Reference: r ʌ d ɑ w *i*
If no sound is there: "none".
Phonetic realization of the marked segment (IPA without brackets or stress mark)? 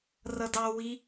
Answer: i